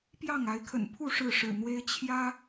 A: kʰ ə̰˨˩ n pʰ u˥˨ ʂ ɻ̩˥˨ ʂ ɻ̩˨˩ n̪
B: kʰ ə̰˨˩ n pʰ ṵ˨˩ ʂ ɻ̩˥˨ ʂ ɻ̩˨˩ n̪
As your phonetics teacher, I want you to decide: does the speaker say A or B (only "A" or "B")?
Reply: A